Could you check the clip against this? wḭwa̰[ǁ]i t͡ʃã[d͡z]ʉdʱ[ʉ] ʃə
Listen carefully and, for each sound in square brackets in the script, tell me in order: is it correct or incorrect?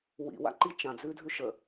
incorrect: ǃ, correct, correct

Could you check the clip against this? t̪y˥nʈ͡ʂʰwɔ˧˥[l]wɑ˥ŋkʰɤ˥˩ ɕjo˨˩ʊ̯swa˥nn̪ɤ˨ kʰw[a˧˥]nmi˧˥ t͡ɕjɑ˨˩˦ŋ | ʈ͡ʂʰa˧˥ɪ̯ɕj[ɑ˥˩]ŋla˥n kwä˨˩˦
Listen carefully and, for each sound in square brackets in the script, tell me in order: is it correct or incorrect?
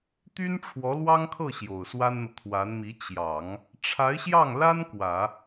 correct, correct, correct

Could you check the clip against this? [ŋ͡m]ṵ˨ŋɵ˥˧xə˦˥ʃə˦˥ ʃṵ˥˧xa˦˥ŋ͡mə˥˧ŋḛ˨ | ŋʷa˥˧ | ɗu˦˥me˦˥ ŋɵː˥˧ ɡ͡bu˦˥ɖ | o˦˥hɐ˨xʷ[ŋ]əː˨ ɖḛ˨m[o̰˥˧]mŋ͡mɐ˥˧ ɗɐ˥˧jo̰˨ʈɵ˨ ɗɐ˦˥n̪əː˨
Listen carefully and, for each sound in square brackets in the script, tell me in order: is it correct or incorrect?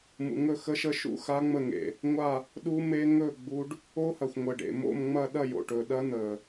incorrect: m, incorrect: ŋʷ, correct

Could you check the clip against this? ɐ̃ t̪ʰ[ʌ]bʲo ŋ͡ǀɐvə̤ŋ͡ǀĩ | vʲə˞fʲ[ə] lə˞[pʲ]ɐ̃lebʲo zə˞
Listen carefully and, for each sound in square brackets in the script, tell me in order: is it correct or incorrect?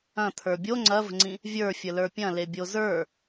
incorrect: ə˞, correct, correct

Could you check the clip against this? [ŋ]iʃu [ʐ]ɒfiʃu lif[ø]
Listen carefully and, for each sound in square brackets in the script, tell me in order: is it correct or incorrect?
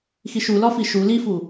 incorrect: x, incorrect: l, incorrect: u

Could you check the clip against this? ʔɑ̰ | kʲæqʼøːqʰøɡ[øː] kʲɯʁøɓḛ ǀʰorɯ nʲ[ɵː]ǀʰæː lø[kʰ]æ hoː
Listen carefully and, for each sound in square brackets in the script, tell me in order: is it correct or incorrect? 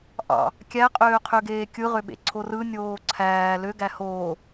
incorrect: eː, incorrect: oː, incorrect: ɡ

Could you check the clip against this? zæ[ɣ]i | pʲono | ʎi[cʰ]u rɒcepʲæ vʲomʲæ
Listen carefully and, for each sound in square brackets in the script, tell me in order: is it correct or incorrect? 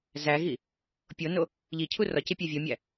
correct, correct

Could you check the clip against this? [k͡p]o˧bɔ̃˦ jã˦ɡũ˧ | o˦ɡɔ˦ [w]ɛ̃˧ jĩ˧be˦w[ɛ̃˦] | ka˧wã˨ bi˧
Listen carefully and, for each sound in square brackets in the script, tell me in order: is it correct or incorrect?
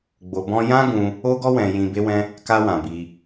incorrect: ɡ͡b, correct, correct

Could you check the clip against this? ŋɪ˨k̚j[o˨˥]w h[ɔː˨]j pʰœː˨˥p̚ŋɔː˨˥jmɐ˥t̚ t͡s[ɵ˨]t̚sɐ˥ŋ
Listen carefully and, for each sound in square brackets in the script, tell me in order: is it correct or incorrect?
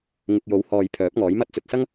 correct, correct, correct

